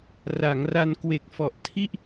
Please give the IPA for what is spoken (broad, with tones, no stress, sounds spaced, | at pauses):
r a˩˦ ŋ r a˧ n k w e˨˩ k̚ f ɔ˨˩ ʔ tʰ i˥˩ ʔ